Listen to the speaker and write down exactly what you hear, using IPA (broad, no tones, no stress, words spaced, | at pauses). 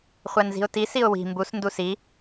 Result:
χʷænzi̤ʊ̯ti siʊ̯wi̤ mbus ndusi